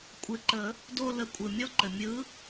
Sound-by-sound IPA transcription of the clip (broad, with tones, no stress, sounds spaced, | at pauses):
kʷʼ ɘ˨˥ ǃ ə˨˩˦ | d o˦˨ l ə˨˥ kʷʼ ɯ˩ mʲ ɔ˦˥ ǃ ɘ˩ mʲ ɯ˨˥